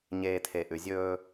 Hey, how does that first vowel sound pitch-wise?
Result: low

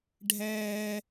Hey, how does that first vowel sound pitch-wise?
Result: high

